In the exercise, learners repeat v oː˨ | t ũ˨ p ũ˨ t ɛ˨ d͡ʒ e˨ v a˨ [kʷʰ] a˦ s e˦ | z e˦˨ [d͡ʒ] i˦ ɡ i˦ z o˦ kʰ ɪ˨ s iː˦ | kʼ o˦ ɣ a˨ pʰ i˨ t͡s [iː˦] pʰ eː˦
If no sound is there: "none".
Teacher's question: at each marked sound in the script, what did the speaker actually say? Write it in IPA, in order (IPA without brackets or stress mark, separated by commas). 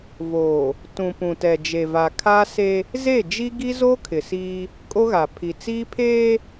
kʰ, d͡ʒ, iː˦